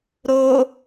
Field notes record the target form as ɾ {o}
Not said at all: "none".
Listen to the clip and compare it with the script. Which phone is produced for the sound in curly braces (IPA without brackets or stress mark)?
o